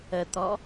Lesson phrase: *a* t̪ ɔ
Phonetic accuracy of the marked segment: incorrect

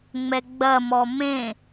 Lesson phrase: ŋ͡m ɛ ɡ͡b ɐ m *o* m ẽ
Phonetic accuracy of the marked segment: incorrect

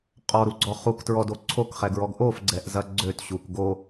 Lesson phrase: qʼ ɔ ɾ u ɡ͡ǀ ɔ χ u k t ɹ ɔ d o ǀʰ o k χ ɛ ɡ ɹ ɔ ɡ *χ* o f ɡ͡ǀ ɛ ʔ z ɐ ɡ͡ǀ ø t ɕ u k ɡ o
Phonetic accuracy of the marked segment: incorrect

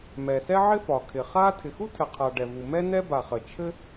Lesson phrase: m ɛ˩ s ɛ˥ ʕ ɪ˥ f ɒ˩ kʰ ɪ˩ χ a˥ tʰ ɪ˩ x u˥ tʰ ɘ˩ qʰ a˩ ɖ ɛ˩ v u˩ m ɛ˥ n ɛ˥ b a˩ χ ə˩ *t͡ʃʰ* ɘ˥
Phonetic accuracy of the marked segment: correct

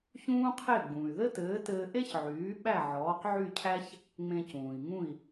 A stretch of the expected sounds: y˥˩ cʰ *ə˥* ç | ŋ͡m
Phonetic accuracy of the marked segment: incorrect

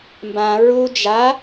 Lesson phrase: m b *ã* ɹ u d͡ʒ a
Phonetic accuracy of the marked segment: correct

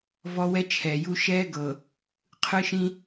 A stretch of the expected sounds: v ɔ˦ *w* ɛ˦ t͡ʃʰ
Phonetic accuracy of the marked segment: correct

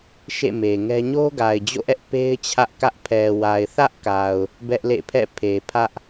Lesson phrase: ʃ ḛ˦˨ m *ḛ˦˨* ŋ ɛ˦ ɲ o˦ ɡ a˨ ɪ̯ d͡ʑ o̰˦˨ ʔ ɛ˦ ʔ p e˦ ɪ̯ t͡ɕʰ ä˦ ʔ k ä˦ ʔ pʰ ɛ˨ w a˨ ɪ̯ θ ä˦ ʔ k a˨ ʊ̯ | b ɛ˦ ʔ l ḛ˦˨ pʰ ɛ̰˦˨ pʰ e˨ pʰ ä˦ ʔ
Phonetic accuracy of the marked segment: incorrect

